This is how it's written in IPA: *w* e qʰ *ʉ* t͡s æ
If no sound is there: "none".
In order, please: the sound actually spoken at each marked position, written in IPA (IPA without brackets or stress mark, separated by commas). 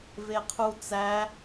v, u